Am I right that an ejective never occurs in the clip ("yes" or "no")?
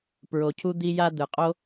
no